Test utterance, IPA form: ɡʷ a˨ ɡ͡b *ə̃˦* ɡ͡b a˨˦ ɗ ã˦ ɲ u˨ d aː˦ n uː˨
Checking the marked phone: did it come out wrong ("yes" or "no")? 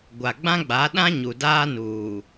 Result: yes